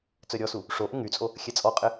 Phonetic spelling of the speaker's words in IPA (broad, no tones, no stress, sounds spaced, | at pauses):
t͡s œ ɾʲ ɔ s u | ʂ o ʔ ɪ ŋ y t͡sʼ o | xʲ ɛ t͡sʼ ɔ qʼ ɪ